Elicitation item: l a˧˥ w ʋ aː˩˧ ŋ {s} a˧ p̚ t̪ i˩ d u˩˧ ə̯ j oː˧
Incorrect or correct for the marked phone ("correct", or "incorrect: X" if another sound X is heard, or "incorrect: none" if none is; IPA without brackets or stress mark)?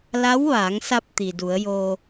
correct